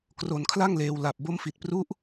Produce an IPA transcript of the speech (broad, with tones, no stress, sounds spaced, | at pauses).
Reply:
k r o˧ n kʰ l a˥˩ ŋ l eː˧ w l a˨˩ p̚ b o˦˥ m f i˨˩ t̚ p r u˦˥ ʔ